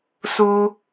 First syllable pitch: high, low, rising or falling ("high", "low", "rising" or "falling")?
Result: high